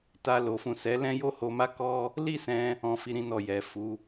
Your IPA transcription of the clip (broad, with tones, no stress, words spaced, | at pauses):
ta˧ lo˨fũ˨ sɛ˨˦lɛ̃˦ jo˦ho˧ma˦ kɔ˦ | li˦sɛ̃˧ | ɔ̃˧fi˧ɾĩ˧ nɔ˨ jɛ˨ fu˨˦